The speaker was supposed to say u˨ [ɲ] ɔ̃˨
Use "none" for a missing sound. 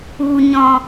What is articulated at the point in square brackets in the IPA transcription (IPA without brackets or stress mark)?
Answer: ɲ